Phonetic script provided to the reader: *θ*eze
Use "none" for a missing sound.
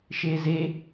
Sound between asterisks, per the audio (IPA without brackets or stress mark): ʃ